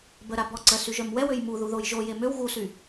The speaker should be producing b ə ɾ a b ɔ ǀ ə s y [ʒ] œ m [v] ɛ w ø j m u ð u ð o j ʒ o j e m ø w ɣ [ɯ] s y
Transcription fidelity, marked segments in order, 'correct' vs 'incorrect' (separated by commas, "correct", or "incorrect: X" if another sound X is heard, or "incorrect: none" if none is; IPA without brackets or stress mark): correct, incorrect: w, incorrect: u